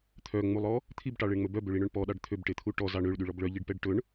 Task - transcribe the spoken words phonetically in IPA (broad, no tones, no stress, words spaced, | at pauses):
t̪ʰœŋ͡mulˠɔ | t̪ʰibʈɑɭeɳŋ͡mɵ bœbøɭiɳɵɳ pɔɗɑɖ t̪ʰøbʈet̪ʰu ʈɔzɑɳ øɭɗyɭɔb ɭœʎiɖpɛɖ ʈɵɳ